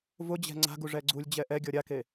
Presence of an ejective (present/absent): absent